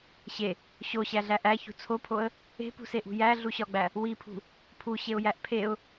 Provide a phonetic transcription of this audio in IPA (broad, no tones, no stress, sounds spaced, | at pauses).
ɕ e | ɕ o ɕ æ ɮ æ ʔ æ ç ṳ t͡sʰ o pʰ o ə̯ | e̤ p ṳ s e ʔ ṳ j æ ɮ u ɕ ɒ ɡ͡b æ | w i pʰ ṳ | pʰ u ɕ e ʊ̯ j æ ʔ pʰ e ʊ̯